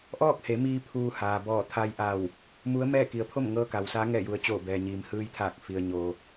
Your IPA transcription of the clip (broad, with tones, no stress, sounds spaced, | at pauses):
ʔ ɔː˥˨ k̚ h e˩˧ m iː˧ pʰ uː˧ h aː˩ b ɔː˧˩ t̪ʰ a˧ j ʔ a˧˩ w | m u˧˥ ə̯ m ɛː˥˨ k i˩˧ ə̯ pʰ o˥˨ m ŋ ɤː˧˥ k a˩ w s aː˧˥ ŋ ɛː˧˩ j u˩ ə̯ t͡ɕ oː˧˩ b ɛː˩ ɲ iː˩ m h ɯː˧ j t̪ʰ aː˧˩ k̚ f i˩ ə̯ ɲ o˩